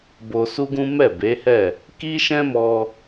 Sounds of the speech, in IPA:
b o˧ s u˦ ɡ ũ˦ m ɛ˦˨ b e˨˦ h ɛ˦˨ | k i˦ ʃ ɛ̃˦ m ɔ˧

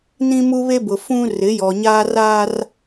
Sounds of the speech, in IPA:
n ĩ˦ m u˦ β e˦ b ʊ˨ f ũ˦ r ɪ˨˦ j ɔ˨ ɲ aː˦ r a˦ r

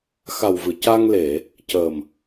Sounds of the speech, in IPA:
x a˨˩ w v ɨ˨˩˨ c a˧ ŋ l e˨˩˨ | c ə˨˩ m

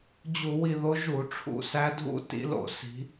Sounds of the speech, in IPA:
d͡ʑ u˧˩˧ w i˦˨ ð o˧˥ ʒ u˧˩˧ ʈ͡ʂʰ ṵ˧˩˧ s æ˧˥ dʱ ṵ˧˥ t ḭ˧˥ l o̰˧˩˧ s i̤˧˥

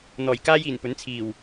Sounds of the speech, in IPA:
n̪ ɔː˨˩ j k aː˥ j iː˨˩ n p ɵ˨˥ n t͡sʰ iː˨˩ w

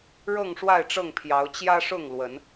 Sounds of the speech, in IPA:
ɻ ɤ˥˨ ŋ ʂ w a˥˨ ɪ̯ ʈ͡ʂ ɤ˥˨ ŋ pʰ j ɑ˨˦ ʊ̯ t͡ɕ j ä˦ ʂ ʊ˥˨ ŋ l w ə˨˦ n

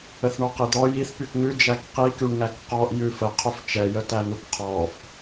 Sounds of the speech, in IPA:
ə θ ɳ ɔ q i d̪ ɔ j i θ p y k ŋ ʉ d͡ʒ æ k q i k y ɳ ŋ æ k q ɔ ʔ j ʉ f ə qʰ ɵ f t͡ʃ ɛ j ə t æ n̪ u k qʰ ɔ f

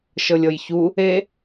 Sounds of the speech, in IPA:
ʃ ɤ lʲ ɤ j ç u | e

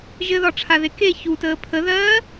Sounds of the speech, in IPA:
ʒ ɘ ð ɒ ʈ͡ʂʰ a ð e k e ç u t əː pʰ ə ð ɜː

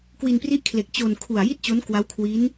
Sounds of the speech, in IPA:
k w i˧ n p r i˥˩ ʔ kʰ l e˨˩ k̚ t͡ɕ o˧ n kʰ u˨˩ a̯ j i˥˩ t̚ t͡ɕ o˦˥ n k w a˦˥ w kʰ w i˦˥ n

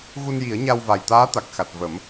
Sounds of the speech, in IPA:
ɣ u˧ n j i˨˩˦ ə̯ ɲ a˧ w v a˨˩ j t̪ aː˧˥ t̪ a˨˩ k̚ x a˨˩ t̚ v ə˨˩˦ m

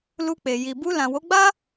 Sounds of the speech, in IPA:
l u˧ k͡p e˨ j i˨ b u˧ l ã˨ w o˨˦ ɡ͡b a˦

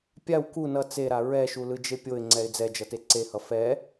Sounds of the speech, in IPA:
pʲ a w k u n ʌ t͡s e ɾ a ɹ ɛ ʃ u l ɯ d͡ʒ e pʲ o ɪ̯ ŋ͡ǀ ɛ ɪ̯ d͡z ɛ d͡ʒ ʌ t e ǀ e h ʌ f ɛ

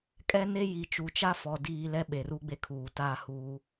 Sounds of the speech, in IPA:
kʼ ɛ˦ n e˦ j i˨˦ t͡ʃ u˨ t͡ʃ a˦ f ɔ˨ d iː˦ l ɛ˦ ɓ e˨ r u˦ ɡ͡b e˦ kʰ uː˨ t a˦ h uː˦

